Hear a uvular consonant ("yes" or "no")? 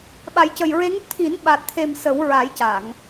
no